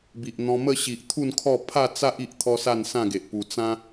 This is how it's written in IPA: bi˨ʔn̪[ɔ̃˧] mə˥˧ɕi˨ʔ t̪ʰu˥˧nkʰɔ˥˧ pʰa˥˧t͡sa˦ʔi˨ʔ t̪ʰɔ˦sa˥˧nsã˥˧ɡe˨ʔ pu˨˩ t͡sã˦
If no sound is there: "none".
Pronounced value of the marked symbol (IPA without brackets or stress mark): ɔ̃˧